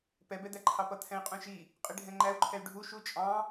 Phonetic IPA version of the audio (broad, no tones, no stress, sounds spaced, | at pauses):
p ɛ b ɛ d̪ æ ǃʰ ɑ p ʌ t̪ʰ ɛ̃ i̯ qʼ ũ ʃ i | qʼ i ɖʱ ɛ̃ ŋ͡ǃ æ u̯ ǃʰ ɛ y̯ ɖʱ u ʃ u t͡ʃʼ ɑ̃